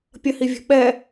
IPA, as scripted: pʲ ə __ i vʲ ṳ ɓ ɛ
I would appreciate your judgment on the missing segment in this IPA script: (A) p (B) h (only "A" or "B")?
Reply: B